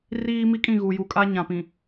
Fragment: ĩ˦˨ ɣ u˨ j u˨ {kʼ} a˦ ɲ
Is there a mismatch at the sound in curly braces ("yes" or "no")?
no